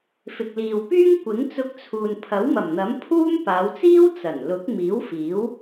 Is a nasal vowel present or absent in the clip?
absent